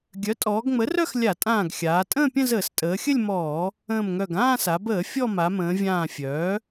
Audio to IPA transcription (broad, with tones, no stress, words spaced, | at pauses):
ɡʲœ˩˥tʼɔː˩˧ɡŋ͡mə˩˥rœ˥˧x lʲa˧˩˧tʼãː˧˩ɡxʲaː˩˧ tʼə̃ː˥˧pʲə̃˥˧ zəː˧˩˧stʼəː˩˧xʲə˥˧lʲ mɔː˧˩˧ | ə̃ː˧˩mŋœ˧˩ɡ ãː˥˧sa˩˧bəː˧˩˧ fʲɔ˥˧ma˩˧mə̃ː˩˧vʲãː˧˩ fʲœː˩˥